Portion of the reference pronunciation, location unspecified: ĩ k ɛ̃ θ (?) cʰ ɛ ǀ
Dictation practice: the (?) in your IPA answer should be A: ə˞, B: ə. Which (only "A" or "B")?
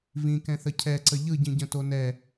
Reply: B